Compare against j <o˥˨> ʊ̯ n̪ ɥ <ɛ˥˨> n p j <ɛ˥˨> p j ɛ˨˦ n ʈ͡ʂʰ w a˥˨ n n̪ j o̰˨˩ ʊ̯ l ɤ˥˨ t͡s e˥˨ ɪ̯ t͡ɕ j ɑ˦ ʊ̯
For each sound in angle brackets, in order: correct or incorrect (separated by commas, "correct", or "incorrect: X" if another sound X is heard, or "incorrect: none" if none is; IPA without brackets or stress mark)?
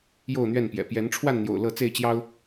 correct, correct, incorrect: ɛ̰˨˩